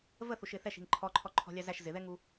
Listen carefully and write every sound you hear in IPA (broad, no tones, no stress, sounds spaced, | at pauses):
v ə θ u ʃ ɪ θ ɛ ʃ i̤ ŋ ǃʰ ɔ ǃʰ ɔ ǃʰ ɔ̤ lʲ ɑ z æ ʃ z ɪ ð ɛ ŋ u